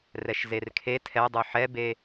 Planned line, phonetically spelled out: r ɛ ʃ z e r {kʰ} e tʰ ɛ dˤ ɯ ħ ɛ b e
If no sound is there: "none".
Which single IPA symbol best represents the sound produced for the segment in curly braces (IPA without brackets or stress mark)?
kʰ